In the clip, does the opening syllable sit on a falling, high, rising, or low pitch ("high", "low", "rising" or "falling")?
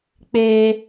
high